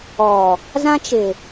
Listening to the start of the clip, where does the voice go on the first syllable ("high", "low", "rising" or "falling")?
low